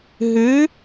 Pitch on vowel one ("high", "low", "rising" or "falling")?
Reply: rising